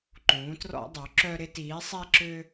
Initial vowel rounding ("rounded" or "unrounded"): rounded